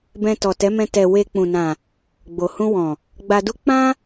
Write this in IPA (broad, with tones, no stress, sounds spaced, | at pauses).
b ɛ̃˧ t ɔ˨ t ɛ˨˦ m ɛ̃˧ t ɛ˨ w e˧ k͡p ũ˨ n ã˨ | ɡ͡b o˨ h ũ˧ w ɔ̃˨ | ɡ͡b a˧ d u˦ k͡p ã˦